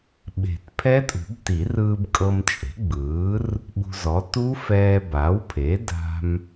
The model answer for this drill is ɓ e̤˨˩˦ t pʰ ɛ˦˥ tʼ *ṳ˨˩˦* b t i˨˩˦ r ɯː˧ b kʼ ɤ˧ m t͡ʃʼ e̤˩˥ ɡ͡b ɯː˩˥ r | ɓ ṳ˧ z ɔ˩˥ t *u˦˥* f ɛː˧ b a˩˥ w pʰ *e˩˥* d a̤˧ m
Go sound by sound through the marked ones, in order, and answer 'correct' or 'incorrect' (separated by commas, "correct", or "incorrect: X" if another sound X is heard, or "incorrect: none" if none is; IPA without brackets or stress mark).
correct, correct, correct